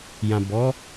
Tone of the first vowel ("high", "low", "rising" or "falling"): low